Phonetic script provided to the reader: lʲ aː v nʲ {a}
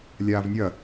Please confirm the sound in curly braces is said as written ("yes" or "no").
no